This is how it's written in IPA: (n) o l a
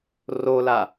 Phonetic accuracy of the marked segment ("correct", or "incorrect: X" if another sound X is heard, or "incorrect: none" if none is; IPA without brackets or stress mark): incorrect: r